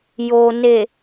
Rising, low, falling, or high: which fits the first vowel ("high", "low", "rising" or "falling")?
low